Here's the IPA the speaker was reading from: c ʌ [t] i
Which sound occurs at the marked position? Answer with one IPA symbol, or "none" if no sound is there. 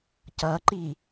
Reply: ǃ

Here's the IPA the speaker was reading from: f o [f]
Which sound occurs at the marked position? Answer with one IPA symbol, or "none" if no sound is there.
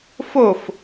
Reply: f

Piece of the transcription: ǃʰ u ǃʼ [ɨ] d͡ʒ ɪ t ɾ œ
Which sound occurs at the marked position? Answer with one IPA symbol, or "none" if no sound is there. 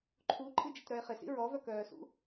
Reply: ɨ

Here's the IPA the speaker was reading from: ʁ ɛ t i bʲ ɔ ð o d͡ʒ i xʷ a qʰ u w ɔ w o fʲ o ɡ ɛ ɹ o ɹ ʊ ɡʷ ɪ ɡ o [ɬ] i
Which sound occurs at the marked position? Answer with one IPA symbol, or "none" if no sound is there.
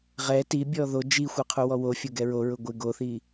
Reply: θ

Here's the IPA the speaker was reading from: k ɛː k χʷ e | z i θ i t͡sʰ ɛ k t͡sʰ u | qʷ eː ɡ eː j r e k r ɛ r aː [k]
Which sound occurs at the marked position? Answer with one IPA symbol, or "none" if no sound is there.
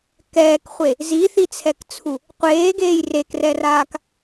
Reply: k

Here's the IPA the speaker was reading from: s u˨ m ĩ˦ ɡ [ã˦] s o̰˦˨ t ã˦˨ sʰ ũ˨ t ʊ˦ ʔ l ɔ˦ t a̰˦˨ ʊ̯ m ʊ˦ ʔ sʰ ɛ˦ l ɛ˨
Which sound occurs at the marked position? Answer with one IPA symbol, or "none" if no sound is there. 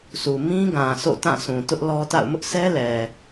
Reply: ã˨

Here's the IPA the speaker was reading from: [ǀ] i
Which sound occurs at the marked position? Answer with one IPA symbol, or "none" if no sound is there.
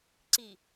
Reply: ǀ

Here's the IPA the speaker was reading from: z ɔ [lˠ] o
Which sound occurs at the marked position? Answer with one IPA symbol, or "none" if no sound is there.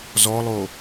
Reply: lˠ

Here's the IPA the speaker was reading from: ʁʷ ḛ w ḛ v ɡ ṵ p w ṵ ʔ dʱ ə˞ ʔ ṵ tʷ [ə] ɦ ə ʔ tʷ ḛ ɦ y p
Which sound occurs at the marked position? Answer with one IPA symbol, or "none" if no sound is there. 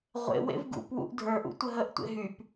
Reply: ə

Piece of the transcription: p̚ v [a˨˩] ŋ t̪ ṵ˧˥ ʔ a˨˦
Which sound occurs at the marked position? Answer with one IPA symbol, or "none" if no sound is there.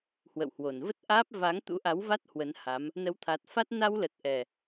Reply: a˨˦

